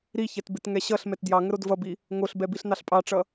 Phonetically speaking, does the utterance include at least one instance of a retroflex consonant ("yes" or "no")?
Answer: yes